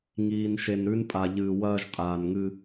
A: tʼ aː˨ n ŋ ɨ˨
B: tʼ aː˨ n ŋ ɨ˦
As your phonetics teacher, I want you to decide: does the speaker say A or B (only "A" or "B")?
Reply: B